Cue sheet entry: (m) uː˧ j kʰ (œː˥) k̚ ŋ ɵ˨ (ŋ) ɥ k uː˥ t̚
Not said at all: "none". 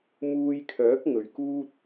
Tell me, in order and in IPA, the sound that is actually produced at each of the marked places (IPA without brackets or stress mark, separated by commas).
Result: m, œː˨˥, none